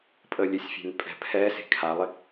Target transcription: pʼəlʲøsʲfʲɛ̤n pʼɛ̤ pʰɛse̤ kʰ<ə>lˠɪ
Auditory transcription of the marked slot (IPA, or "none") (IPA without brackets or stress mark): a